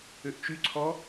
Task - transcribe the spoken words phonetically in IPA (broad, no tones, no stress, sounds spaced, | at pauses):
ø ʔ t͡ʃ y ǀʰ ɔ